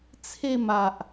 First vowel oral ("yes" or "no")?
yes